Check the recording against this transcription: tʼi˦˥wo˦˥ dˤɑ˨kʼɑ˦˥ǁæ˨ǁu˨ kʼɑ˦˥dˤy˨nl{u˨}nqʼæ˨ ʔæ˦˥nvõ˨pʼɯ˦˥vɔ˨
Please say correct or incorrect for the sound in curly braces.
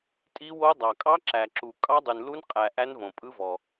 incorrect